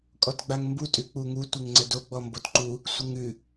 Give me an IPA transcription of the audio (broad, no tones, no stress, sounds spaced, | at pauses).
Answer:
kʼ ɔ t ɡ͡b a ŋ m b u tʼ ʉ k͡p u ŋ u tʷ ɪ ŋ ŋ͡ǀ ə d o ɡ͡b ɔ m b o t ǃ u | sʷ ɪ ŋ ʉ